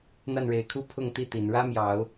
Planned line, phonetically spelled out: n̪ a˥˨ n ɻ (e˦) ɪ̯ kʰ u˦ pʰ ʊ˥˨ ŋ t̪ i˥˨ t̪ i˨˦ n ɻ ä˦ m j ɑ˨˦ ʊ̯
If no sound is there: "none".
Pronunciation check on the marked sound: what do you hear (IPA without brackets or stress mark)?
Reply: e˨˦